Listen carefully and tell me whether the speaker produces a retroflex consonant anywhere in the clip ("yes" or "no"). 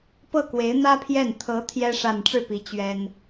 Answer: yes